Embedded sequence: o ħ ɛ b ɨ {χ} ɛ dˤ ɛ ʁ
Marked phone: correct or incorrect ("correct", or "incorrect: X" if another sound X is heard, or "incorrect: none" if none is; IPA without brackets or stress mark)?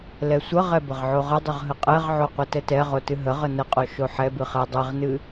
correct